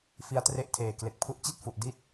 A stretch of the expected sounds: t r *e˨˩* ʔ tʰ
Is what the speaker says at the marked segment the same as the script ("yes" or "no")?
no